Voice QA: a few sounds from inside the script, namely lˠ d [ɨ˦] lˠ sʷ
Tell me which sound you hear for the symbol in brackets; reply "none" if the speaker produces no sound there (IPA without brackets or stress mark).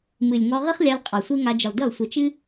ɨ˦˨